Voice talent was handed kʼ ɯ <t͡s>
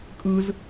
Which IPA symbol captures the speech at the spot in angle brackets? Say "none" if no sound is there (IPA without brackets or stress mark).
z